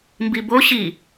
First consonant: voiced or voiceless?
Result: voiced